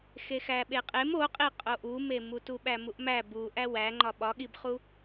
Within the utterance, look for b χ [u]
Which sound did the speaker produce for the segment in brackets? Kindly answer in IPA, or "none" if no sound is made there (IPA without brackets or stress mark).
u